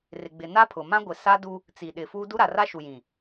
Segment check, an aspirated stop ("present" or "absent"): present